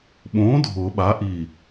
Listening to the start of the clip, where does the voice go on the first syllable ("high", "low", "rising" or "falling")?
rising